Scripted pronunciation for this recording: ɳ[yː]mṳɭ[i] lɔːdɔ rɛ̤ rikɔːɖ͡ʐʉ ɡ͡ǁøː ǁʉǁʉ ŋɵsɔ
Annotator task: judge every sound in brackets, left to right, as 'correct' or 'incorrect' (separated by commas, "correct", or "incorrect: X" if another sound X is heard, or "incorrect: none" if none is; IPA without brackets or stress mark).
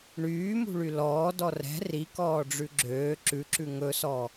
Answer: correct, incorrect: y